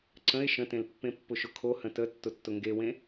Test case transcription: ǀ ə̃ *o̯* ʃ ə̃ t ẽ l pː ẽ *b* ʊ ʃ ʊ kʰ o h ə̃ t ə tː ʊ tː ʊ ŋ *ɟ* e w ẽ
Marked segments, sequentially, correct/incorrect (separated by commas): incorrect, incorrect, incorrect